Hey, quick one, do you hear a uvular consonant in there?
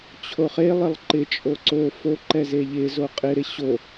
yes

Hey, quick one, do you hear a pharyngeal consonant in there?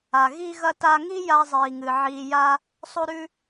yes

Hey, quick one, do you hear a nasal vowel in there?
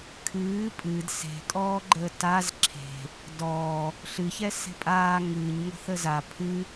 no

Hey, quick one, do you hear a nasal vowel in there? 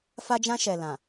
yes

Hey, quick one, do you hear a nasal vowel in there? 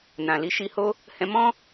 yes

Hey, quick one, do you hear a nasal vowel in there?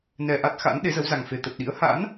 no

